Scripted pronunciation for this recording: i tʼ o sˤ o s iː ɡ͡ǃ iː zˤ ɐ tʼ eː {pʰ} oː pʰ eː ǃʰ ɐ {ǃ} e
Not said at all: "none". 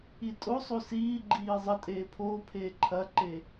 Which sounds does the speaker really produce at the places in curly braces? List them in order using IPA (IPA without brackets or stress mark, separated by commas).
pʰ, ǃ